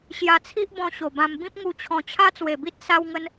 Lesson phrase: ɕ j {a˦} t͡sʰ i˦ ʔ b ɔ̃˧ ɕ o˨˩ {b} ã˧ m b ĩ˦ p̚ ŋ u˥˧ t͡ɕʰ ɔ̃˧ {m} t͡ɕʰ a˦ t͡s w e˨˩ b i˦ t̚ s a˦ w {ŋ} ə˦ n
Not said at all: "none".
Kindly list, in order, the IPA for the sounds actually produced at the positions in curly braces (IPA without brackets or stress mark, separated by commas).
a˧, b, none, ŋ